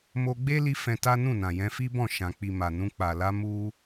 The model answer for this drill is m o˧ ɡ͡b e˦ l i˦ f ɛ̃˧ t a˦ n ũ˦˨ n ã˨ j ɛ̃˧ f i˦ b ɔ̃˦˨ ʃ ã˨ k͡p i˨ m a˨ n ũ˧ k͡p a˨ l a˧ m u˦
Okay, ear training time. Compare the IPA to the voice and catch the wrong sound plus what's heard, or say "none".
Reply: none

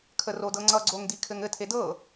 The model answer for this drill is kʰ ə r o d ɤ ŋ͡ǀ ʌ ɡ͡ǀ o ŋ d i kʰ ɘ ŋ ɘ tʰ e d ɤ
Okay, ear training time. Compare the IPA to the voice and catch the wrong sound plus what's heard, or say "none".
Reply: none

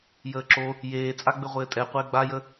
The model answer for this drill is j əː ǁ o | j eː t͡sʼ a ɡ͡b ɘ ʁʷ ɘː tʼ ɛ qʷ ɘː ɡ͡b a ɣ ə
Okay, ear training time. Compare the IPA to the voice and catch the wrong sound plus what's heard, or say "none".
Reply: ɣ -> j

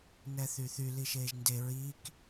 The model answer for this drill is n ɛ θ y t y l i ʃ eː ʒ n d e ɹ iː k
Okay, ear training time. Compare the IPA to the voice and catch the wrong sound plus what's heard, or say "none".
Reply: t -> θ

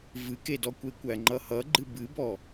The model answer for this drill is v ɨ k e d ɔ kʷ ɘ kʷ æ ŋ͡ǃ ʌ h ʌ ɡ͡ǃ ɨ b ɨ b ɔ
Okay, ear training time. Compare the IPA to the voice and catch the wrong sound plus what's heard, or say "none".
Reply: ɘ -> e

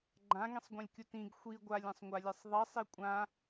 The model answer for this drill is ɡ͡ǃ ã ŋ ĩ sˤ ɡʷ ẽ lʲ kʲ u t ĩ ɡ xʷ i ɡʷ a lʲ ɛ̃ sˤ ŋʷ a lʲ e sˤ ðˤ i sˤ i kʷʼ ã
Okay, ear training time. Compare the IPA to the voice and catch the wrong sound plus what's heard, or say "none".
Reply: none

